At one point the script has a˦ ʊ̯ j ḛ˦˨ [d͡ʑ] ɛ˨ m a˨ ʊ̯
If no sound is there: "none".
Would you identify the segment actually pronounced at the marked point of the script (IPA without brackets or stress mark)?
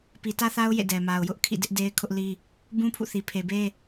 d